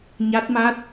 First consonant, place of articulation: palatal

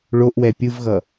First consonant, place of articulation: retroflex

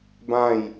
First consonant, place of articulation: labial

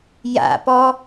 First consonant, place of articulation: palatal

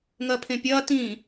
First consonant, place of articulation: velar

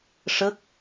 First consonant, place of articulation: retroflex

